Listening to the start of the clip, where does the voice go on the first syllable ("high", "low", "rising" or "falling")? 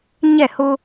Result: falling